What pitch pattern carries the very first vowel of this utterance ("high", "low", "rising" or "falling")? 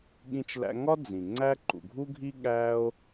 high